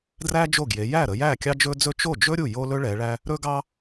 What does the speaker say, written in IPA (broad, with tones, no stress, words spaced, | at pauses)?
dræ˥d͡ʒo˥˩ɡje˨˦ jæ˥˩ɾə˨˦jæ˥˩ kʲɑ˥d͡ʒɵ˥ d͡zɵ˥ t͡ʃo˥˩d͡ʒɵ˥ ɾʲu˥˩jo˥lɵ˥ ɭɛ˨˦ɭæ˥ | ɾɵ˥ɡɑ˥